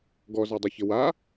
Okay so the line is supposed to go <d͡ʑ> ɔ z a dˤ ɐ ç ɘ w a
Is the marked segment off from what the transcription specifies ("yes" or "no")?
yes